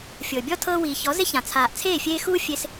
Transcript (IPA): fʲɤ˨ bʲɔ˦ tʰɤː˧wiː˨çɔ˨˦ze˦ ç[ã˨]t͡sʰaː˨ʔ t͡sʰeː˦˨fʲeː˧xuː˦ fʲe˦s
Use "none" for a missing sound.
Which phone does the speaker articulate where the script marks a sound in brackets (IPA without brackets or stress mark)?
ã˨